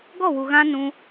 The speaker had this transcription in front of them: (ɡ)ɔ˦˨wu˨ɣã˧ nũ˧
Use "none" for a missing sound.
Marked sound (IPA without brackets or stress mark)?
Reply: ɡ